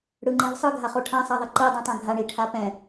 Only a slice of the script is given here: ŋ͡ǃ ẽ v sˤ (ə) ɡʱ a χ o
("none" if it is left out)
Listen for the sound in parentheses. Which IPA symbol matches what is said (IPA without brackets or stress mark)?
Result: ɯ